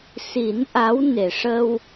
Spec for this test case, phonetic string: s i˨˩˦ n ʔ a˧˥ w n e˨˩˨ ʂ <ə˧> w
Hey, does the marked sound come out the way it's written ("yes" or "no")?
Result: yes